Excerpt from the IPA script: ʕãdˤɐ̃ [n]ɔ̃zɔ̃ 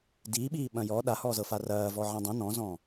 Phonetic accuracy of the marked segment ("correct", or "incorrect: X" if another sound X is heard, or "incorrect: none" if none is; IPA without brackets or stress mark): correct